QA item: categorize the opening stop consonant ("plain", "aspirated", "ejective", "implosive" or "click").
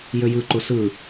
click